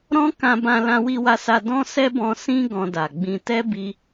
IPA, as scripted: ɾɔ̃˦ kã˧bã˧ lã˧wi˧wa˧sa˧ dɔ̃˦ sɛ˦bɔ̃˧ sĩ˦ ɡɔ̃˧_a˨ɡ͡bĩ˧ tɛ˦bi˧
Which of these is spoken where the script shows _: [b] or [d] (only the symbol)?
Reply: d